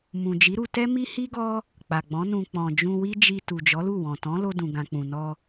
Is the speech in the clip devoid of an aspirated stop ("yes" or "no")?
yes